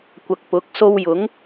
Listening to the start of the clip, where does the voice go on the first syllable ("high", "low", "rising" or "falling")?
low